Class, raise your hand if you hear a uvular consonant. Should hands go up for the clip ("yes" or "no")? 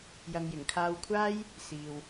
no